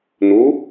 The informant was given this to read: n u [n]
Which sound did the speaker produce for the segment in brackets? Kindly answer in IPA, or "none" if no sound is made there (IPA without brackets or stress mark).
none